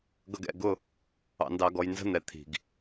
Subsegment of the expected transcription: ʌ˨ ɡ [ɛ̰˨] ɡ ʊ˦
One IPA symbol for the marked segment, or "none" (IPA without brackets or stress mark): ɛ̰˦˨